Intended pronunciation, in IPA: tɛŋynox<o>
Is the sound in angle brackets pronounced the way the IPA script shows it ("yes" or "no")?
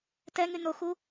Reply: no